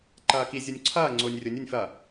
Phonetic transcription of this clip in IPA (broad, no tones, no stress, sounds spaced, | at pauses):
ǃ ɐː k i zʲ u nʲ ǀʰ ɐː ŋ͡ǀ ʊː nʲ rʲ ʊ nʲ u nʲ f ɐ